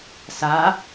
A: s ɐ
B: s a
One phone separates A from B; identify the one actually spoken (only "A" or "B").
B